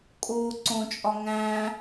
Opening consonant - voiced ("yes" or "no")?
no